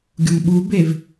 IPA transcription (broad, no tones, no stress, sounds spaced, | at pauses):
ɡʲ o m ɓ u b e v